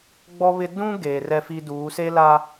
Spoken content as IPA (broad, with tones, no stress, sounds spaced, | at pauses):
ɡ͡b ɔ˦ β ɪ˦ d ũ˦ ɡ eː˨ r ɛ˦ f i˦ d uː˨˦ s e˦ l a˦